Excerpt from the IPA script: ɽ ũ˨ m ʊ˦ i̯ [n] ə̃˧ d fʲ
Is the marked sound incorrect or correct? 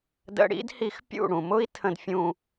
incorrect